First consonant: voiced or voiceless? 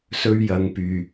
voiceless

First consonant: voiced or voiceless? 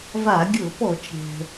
voiced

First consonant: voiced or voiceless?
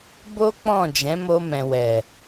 voiced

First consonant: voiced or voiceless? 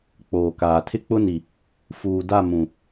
voiceless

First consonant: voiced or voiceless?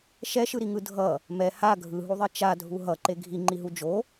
voiceless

